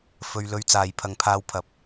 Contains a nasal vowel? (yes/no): no